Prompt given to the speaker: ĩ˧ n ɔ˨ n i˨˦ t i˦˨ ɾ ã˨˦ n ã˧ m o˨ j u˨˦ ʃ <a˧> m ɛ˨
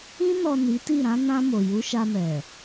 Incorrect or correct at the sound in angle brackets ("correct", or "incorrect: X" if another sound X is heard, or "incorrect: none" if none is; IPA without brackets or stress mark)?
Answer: correct